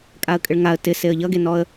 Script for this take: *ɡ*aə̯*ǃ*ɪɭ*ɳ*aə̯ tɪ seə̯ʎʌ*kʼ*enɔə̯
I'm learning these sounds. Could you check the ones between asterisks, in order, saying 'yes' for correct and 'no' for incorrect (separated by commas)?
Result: no, no, no, no